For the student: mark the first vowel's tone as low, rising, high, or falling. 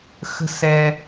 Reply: high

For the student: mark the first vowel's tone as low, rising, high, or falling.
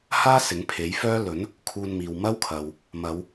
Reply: high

